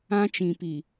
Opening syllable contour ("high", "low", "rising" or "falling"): high